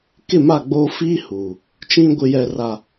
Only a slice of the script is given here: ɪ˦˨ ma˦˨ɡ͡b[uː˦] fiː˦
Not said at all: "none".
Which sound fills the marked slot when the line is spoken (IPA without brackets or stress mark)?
oː˦